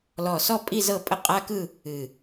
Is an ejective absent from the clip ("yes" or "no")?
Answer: no